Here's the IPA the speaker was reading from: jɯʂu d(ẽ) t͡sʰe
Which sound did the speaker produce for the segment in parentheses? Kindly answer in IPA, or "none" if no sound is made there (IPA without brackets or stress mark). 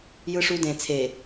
ẽ